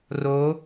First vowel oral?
yes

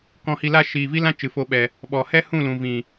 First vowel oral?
no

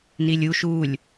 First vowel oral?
yes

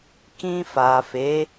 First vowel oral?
no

